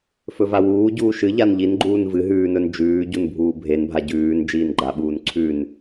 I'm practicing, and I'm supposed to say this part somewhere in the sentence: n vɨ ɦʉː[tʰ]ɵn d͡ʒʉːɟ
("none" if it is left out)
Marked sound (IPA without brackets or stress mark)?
n